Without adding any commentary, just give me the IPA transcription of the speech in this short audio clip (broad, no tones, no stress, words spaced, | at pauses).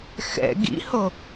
xɛ̰ ɡḭho